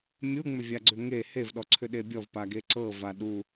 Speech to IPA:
mʲ u ŋ͡m ʏ vʲ a ɡ͡ǀ ʏ ŋ e h e v ɗ ɔ ǀʰ ʏ ɗ e bʲ ɔ v p a ɡ e ǀ ɤ v a ɗ u

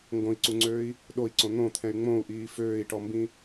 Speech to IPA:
ŋ ɡ õ i̯ ǀ u ŋ͡ǀ øː i̯ | ɗ o i̯ ǀ õ n̪ õ t̪ʰ ɛ̃ y̯ ŋ͡m õ u̯ ʔ iː f øː i̯ ʈ ɔ m b ĩ

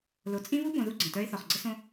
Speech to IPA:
l o˨ t͡sʼ ĩ˦ β u˦ b õ˨ ð u˦ ɡ͡ǀ ə̃˨ t œ˦ ɪ̯ θ ɔ˨ χ ɡ͡ǀ ə˦ s õ˦

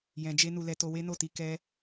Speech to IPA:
j ɛ̃˨ d͡ʒ e˧ n u˧ l ɛ˧ t o˧ w e˦ n o˦˨ t i˧ k ɛ˧

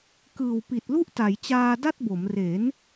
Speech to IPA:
k ɯː˨˩ w p i˨˩ t̚ l u˦˥ ʔ t a˩˦ j t͡ɕ aː˧ d a˥˩ t̚ b o˩˦ m r e˩˦ n

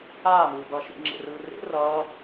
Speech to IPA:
aː m ɯː b ʌː ʃ ḭ ŋ͡ǁ ḛ r ɯː r ḛ r ʌː

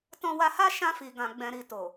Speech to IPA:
t ɔ̃˧ w a˧ h a˦ ʃ ã˧ f i˨ ɡ ã˨ ɡ͡b ɛ̃˨ ɾ i˨ t o˨

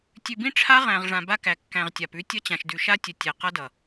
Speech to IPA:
tʲ ʉ˨ b ĩ˦ ʈ͡ʂʰ a˦ ʁ æ̃˨ ʁ ʐ ã˨ b a˦ k æ˨ kː æ̃˨ ʁ tʲ a˨ p ʉ˦ tʲ ʌ˦ t͡ɕ ã˨ ʃ d ʉ˨ ʃ a˦ tʲ ə˨ tʲ e˨ q ʌ˦ d ʌ˨

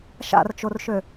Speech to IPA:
ʃ a̰ r t͡ʃ o r ʃ ø

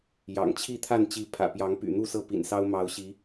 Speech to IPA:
j ɑ̰˨˩ ŋ t͡ɕʰ i˥˨ t̪ʰ a˥˨ n t͡ɕ i˨˦ pʰ ä̰˨˩ p j ɑ˨˦ ŋ p y̰˨˩ n̪ u˥˨ s ɤ˥˨ p ḭ˨˩ n s ɑ˦ ʊ̯ m ɑ˨˦ ʊ̯ ɕ i˨˦

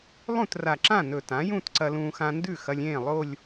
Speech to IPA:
lˠ ũ˥˩ t r a˨˩ ǁ ã˥˩ n ɵ˨˩ t ã˩˥ j ũ˥˧ t ǀ ɐ˧ l ũː˧ x ã˧ n d ʉ˥˩ x ɐ˧ lʲ ẽː˥˩ lˠ o˥˧ lʲ

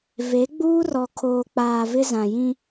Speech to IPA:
v e˨˦ ɡ͡b uː˦ r ɔ˨ kʰ oː˨ k͡p aː˨ v ɪ˦ z ã˨ j ĩ˦

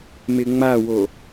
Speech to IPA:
m ɪ ŋ͡m a w o

